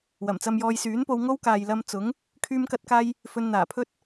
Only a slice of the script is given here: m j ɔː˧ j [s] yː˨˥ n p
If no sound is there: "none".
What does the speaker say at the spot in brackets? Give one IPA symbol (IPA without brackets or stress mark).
s